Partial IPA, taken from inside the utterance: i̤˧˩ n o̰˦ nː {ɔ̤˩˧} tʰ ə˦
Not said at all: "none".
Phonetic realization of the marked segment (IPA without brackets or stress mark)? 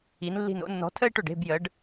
ɔ̤˨˥